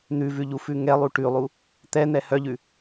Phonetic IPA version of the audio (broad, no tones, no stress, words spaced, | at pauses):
n̪ʉvʉʎufʉ ŋɛlˠu ʈʉlˠu | t̪ɛn̪ɛ hœʎʉ